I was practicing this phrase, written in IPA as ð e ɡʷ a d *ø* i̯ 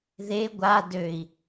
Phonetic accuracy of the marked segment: correct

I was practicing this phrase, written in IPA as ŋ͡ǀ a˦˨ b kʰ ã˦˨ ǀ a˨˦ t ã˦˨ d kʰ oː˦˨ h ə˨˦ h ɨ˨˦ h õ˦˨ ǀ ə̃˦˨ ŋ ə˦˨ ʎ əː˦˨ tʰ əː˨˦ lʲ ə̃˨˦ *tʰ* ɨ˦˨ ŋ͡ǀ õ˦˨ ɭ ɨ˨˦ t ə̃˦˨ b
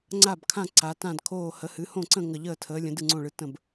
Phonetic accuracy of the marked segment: incorrect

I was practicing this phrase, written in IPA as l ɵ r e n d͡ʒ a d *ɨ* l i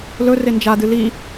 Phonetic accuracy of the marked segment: correct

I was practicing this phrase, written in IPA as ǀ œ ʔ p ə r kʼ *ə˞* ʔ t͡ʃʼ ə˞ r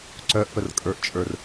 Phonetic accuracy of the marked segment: correct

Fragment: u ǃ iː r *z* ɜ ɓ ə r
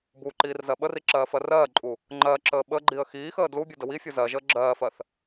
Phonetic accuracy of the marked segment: correct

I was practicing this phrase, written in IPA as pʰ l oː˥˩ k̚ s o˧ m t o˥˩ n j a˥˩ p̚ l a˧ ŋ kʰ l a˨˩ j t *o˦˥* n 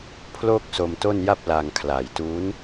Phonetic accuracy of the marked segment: incorrect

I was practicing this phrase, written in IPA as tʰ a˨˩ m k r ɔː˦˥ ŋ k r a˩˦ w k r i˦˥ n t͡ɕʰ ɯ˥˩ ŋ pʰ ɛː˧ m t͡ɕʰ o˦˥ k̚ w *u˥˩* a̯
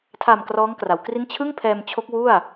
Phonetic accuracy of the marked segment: correct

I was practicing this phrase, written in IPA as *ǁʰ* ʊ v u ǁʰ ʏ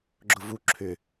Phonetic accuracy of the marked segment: incorrect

